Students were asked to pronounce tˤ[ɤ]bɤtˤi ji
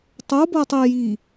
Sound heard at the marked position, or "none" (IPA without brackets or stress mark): o